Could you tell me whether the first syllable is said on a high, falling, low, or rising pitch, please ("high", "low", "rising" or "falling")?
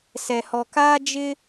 low